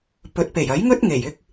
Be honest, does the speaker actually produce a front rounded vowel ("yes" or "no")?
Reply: no